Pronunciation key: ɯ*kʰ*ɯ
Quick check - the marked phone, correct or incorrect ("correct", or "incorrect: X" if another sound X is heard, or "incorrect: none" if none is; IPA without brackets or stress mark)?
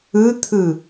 incorrect: t̪ʰ